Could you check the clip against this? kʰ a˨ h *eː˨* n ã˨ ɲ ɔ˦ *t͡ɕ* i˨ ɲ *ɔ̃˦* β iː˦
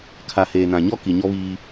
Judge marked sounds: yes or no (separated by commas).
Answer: yes, no, no